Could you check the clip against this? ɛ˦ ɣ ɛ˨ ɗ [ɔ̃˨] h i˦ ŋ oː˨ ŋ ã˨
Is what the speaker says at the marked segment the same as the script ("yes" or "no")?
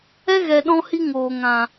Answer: no